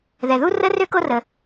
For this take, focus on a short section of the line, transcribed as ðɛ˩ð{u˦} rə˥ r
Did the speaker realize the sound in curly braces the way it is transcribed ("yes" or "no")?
yes